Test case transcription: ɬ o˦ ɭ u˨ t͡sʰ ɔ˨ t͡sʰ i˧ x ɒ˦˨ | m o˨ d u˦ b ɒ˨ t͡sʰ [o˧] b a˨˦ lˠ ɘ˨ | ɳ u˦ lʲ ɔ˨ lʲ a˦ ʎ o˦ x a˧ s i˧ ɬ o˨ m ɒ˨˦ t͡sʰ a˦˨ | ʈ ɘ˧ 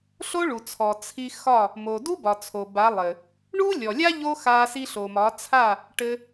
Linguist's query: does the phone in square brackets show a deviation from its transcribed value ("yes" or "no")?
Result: yes